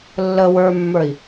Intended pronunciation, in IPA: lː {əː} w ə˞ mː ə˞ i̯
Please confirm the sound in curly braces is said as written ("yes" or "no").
no